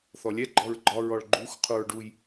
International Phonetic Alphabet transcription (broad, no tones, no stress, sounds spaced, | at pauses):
θ ɔ lʲ ɛ ɡ͡ǃ ɔ ɹ ɡ͡ǃ ɒ ɹ ɔ ɭ ɡ͡ǃ u x qʰ u ɹ ɖ u j